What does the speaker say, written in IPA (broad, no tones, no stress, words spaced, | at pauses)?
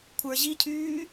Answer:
kʷʰə˞ ʑicʰyː